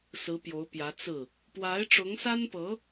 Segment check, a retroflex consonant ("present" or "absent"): present